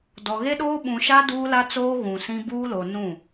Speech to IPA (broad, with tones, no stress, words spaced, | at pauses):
dɔ˨ɣe˦ɗoː˦ ɓũ˨ʃa˦ duː˦la˦t͡soː˦ ɣũ˨sĩ˦ buː˦lo˨ nũ˦˨